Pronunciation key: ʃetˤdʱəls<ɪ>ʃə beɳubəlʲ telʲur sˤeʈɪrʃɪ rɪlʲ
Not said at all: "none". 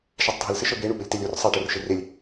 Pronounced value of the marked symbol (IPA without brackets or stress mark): ɪ